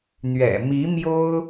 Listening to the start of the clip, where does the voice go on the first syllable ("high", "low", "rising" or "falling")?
low